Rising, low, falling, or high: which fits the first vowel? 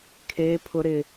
high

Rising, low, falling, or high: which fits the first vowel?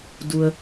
low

